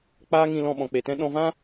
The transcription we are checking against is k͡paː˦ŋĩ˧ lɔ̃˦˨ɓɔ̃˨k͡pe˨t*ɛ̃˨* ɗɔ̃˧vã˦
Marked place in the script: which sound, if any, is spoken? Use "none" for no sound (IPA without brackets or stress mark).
ɛ̃˦